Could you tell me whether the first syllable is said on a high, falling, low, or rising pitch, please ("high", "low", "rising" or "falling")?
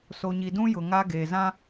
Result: low